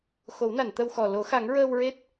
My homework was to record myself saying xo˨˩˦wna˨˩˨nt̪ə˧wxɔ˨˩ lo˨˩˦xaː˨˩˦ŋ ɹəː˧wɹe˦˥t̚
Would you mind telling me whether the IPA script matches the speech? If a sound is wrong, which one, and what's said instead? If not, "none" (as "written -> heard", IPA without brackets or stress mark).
aː˨˩˦ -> a˨˩˦